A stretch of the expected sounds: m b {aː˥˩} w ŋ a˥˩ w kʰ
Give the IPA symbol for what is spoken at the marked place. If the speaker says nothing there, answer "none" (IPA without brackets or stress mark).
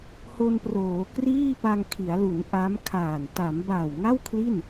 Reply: aː˨˩